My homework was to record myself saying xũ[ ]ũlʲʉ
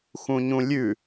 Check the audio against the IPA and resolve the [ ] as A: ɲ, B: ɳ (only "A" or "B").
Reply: A